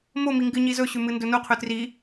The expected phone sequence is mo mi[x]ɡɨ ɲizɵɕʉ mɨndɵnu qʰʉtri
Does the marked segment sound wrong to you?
yes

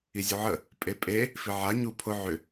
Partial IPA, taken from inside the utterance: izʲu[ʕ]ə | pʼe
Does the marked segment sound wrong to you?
no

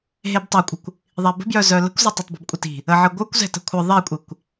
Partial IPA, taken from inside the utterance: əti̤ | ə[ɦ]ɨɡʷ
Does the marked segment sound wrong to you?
yes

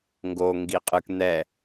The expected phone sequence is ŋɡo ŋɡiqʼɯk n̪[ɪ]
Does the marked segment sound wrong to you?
yes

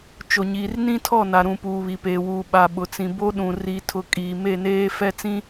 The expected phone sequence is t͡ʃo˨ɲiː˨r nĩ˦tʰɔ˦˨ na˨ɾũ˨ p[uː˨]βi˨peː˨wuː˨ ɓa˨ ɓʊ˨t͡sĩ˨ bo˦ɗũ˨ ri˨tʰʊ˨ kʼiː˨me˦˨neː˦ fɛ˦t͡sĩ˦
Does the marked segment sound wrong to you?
no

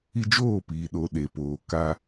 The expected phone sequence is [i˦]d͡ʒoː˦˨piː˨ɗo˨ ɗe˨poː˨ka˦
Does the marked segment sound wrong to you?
no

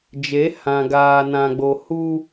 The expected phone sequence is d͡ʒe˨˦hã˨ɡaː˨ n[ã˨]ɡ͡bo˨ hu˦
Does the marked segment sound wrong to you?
no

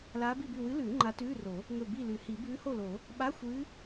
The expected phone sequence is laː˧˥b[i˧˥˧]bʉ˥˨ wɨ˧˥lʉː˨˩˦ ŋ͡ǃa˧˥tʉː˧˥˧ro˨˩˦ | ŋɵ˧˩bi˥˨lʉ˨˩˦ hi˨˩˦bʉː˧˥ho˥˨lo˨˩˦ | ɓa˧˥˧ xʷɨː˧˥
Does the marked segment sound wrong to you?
yes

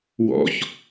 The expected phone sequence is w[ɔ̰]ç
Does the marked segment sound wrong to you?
no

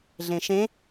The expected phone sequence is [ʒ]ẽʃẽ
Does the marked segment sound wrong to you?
yes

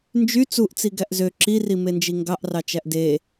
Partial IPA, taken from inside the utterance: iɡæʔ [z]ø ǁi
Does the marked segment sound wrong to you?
no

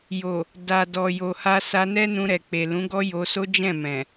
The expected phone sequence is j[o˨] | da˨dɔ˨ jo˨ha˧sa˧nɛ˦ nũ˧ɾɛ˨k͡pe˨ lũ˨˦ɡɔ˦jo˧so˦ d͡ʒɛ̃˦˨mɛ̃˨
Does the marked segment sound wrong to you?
no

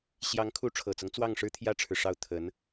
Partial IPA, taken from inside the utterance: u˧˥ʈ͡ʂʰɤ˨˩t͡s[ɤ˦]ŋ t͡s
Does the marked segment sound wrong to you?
no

